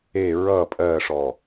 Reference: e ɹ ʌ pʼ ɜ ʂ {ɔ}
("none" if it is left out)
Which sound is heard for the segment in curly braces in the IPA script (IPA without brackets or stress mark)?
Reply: ɔ